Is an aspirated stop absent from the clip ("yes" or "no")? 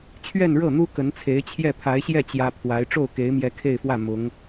no